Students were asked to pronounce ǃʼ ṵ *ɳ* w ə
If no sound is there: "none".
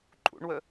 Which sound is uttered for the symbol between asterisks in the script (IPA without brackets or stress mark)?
ɳ